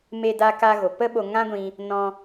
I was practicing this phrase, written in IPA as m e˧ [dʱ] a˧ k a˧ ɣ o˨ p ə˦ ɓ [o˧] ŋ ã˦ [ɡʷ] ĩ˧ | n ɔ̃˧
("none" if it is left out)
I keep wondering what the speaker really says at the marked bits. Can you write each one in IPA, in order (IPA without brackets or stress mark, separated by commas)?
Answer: d, o˧, ɡʷ